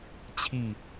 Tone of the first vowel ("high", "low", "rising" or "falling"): falling